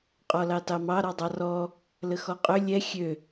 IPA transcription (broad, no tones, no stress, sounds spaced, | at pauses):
qʼ ɔ l ɑ t ɑ m ɑ ɾ ɔ dˤ ɑ r ɔ | l ə x ɔ qʼ ø lʲ ɛ xʲ ø